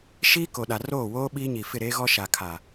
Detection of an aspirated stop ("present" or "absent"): present